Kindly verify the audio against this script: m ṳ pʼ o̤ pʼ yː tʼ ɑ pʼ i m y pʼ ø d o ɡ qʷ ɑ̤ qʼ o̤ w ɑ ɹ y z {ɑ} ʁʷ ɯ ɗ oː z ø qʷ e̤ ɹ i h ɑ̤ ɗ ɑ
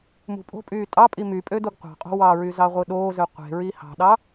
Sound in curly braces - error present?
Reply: no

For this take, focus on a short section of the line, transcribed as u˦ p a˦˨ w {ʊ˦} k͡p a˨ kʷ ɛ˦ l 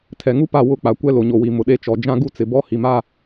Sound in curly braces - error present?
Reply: yes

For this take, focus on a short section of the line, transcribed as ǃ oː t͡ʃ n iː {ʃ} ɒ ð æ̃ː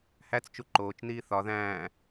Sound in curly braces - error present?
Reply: yes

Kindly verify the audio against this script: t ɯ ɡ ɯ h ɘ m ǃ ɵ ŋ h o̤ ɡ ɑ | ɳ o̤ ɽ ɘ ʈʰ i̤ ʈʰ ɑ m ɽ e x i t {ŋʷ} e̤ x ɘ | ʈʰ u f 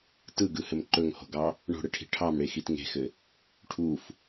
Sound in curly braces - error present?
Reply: yes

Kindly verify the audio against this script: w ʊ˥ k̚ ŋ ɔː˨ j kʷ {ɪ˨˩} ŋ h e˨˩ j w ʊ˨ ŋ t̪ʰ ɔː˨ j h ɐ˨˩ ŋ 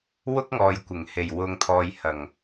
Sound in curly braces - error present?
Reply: no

